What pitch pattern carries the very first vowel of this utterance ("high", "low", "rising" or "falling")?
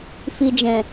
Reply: low